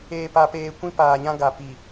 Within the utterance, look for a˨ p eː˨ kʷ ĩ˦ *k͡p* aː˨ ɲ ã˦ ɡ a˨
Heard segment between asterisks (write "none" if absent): p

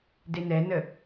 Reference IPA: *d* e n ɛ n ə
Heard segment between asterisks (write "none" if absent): d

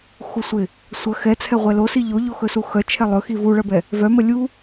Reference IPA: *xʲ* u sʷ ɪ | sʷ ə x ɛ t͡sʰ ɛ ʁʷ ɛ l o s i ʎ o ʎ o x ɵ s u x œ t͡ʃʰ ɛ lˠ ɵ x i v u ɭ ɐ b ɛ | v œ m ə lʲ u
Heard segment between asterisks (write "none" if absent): x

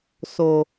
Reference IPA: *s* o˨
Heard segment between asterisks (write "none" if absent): s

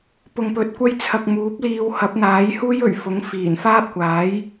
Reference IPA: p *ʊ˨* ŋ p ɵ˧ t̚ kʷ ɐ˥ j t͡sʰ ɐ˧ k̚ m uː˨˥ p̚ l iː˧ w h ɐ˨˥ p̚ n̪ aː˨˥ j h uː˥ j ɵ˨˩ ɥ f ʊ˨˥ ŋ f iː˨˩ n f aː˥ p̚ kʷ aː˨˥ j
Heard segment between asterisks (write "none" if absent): ʊ˧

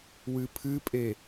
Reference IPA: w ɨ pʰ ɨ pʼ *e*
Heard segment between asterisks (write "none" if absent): e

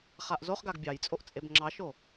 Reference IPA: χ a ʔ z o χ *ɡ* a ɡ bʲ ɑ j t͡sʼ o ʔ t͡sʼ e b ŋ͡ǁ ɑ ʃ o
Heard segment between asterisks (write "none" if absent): ɡ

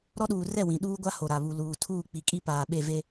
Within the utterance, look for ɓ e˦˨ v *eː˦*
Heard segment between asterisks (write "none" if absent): e˦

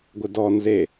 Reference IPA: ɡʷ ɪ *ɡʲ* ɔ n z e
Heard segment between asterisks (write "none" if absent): d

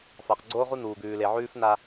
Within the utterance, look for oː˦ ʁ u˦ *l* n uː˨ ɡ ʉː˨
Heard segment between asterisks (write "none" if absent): none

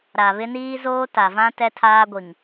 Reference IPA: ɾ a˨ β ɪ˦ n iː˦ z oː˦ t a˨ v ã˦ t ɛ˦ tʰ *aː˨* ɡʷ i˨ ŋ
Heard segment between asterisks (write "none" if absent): aː˦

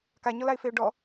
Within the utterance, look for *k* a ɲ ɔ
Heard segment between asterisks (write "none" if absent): k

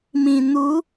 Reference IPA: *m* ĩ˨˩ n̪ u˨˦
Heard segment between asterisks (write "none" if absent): m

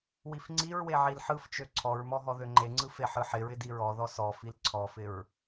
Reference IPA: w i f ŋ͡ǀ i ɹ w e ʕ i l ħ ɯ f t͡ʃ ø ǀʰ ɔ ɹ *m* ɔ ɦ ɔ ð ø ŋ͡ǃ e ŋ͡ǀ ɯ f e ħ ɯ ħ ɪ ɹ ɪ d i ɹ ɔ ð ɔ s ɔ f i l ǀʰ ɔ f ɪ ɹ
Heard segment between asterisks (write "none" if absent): m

